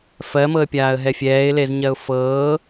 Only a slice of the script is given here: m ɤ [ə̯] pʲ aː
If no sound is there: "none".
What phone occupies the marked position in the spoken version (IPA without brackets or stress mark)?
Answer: ə̯